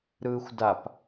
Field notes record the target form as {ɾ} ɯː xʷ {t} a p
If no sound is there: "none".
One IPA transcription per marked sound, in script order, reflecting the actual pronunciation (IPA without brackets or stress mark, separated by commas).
ɾ, d